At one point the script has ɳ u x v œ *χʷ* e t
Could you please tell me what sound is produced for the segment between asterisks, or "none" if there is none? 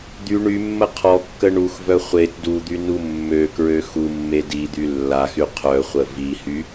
χʷ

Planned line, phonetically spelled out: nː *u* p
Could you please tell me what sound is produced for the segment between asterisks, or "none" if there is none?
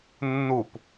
u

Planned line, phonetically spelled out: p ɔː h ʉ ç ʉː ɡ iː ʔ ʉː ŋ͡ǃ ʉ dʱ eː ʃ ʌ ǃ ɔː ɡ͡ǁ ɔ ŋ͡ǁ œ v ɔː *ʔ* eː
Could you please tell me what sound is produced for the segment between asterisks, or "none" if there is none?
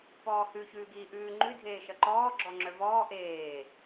ʔ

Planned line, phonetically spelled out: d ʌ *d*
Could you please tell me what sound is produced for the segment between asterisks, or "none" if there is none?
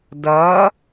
none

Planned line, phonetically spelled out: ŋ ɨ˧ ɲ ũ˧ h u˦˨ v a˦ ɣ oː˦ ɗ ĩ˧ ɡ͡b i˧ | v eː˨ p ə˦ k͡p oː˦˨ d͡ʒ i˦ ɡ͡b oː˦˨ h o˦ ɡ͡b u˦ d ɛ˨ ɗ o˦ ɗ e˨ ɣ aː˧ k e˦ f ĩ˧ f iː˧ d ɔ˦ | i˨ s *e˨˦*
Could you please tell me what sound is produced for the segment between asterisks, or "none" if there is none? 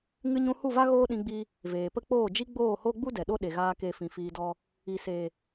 e˨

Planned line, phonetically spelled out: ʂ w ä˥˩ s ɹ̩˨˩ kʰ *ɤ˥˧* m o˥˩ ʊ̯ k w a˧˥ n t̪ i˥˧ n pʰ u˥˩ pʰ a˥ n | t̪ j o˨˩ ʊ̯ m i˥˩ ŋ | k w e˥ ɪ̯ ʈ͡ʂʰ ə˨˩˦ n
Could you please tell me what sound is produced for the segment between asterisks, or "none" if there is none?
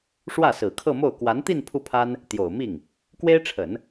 ɤ˥˧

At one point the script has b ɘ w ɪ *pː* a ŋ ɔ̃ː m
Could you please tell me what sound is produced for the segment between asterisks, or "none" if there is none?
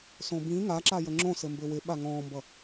ɓ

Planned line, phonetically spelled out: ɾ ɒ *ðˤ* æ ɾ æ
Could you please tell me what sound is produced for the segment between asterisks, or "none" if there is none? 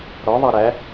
ðˤ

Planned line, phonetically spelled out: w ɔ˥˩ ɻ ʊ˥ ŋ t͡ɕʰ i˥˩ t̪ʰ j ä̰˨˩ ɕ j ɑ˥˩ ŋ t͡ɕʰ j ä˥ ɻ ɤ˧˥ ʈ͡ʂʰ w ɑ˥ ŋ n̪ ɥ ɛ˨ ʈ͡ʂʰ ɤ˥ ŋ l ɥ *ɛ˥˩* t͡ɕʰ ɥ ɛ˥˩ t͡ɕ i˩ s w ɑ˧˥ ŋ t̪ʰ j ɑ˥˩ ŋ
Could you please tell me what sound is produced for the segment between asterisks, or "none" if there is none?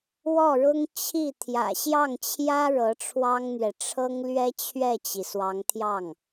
ɛ˥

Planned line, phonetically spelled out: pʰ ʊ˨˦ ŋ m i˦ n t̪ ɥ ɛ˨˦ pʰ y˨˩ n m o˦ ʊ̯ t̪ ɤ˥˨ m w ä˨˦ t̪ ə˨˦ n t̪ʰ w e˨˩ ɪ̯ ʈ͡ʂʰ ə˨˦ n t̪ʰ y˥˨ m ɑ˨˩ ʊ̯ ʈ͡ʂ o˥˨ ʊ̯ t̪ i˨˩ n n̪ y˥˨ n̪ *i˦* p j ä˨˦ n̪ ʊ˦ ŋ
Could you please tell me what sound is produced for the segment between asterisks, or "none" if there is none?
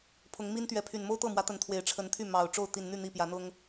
i˥˨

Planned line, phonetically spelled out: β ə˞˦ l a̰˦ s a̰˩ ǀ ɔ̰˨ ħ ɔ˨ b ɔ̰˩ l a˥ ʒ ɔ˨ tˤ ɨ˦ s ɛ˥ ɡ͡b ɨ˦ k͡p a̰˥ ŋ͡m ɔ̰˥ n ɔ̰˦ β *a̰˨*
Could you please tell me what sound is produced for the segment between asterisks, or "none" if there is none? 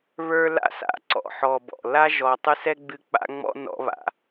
a̰˨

